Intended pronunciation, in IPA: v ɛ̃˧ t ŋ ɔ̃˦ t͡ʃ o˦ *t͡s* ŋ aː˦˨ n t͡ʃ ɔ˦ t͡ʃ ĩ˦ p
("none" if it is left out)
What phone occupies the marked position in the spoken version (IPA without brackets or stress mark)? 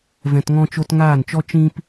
t